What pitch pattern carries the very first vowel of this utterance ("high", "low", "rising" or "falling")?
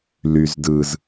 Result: low